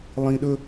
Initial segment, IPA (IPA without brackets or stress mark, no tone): lˠ